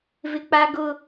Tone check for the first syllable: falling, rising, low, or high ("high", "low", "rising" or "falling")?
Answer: high